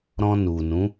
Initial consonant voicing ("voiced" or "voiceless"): voiced